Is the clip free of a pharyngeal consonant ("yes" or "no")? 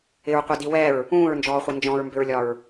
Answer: yes